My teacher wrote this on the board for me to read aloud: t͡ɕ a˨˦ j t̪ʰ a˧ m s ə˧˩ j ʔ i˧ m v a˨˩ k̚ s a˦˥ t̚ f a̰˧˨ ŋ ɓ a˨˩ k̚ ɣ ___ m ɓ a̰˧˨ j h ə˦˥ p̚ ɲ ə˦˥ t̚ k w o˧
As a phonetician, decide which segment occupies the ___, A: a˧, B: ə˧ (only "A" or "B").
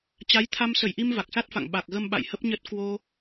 B